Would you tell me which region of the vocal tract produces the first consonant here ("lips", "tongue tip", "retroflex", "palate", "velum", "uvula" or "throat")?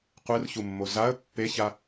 uvula